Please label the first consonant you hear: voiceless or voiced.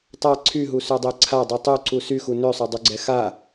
voiceless